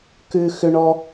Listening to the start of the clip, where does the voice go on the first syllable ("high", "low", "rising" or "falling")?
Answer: high